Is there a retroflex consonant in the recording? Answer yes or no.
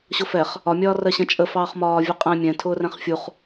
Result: no